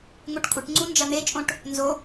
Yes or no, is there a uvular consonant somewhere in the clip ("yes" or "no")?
no